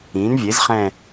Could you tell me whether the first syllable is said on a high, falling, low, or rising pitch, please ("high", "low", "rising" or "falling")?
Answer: rising